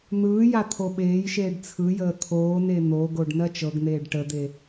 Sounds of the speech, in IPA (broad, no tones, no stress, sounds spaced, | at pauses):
n̪ ɯː j a t̪ʰ o ɓ eː j ʃ eː ɖ t͡sʰ ɯ j əː t̪ʰ oː n e n̪ o ɡ o ɖ n ɜ t͡ʃ ɤ ɡ n̪ eː ɖ ʈ ə d̪ e